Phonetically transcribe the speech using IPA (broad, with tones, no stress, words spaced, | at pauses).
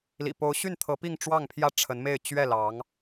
lḭ˨˩po˧˥ʊ̯ɕy˥˩nt̪ʰɤ˧˥ pi˥˧ŋʈ͡ʂwɑ˥˩ŋpʰjä˥ ʈ͡ʂʰə˧˥nme˥˧ɪ̯ t͡ɕɥɛ˥˩lɑ˧˥ŋ